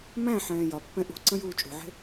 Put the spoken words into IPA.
m æ̃ ħ ɛ̃ː j ɒ pː ɛ̃ ʔ ṳ ǀ ə̃ j uː t͡ʃʼ ṳ ʕ e̤

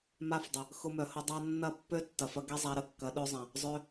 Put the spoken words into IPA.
m a˦ f dˤ ə˨ | x ʊ˧ m œ˨ h ʊ˧ dˤ a˦ nː ɐ˦˨ pː ø˦ tː ɐ˨ f ɐ˧ ɡ ɛ˦ zˤ a˧ ɾ ə˨ kː ɐ˨˦ ɗ ø˦ zˤ ɐ̃˨ | zˤ ø˧

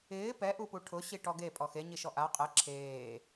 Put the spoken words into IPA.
ɪː p ɛ ʔ u p u ʈʰ ʊ ɕ i ʈ ɔ ɡ e pʼ ɔ x e ɲ i ʃ ɔ ʔ a qʼ ɛ ǁʰ eː

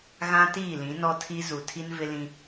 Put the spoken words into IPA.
ɣ ã˦ t iː˦˨ l ĩ˨˦ n ɔ˦ tʰ i˦ z u˨ tʰ i˦ n v ɪ˦ l ĩ˦

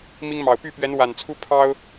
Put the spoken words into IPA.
m i˥ ŋ m ɑ˨˩ ʊ̯ p y˥˩ p ɥ ɛ˧˥ n w a˨˩ n t͡sʰ u˥ pʰ ɑ˥ ʊ̯

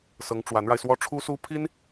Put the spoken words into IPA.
s ɤ˧˥ ŋ ʈ͡ʂ w a˧˥ n ɻ a˧ ɪ̯ s w ɔ˥ ʈ͡ʂʰ u˥ s u˥ pʰ i˥ n

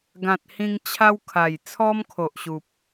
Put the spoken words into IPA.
ɡ ã˨ t̚ h ĩ˧ ŋ t͡ɕʰ a˦ w kʰ a˨˩ j t͡sʰ ɔ˦ m kʰ o˨ ʔ ɕ u˨ p̚

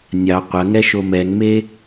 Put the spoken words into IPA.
nʲ ɑ qʷ ɐ ŋ ɛ ʃ o m ɛ ŋ m e

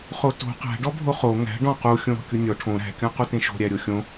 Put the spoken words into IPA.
χ o t o̤ q æ̤ ɖ ɔ bʱ o χ o ŋ æ̤ ɖ ɔ̃ q u xʲ õ ɾ ɔ̤ kʲ u nʲ ɔ ʈʰ õ ɾ æ̤ kʲ ɔ̃ q u t ẽ ʃ o̤ ɾʲ æ ɾʲ o xʲ õ

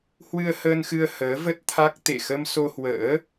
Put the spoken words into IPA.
h w ɨ˧ ə̯ h əː˧ n x ɨ˧ ə̯ h əː˨˦ v ə˦˥ t̚ t̪ʰ a˦˥ k̚ t̪ ḛ˧˨ x ə˧ m s o˧ h w ə̰ː˧˥

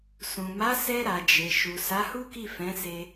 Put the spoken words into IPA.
s ũ˨ m a˨˦ s ɛ˧ ɾ a˨ d͡ʒ e˨ ʃ u˨ s a˨˦ h u˦ k i˦˨ f ɛ̃˨˦ s e˧

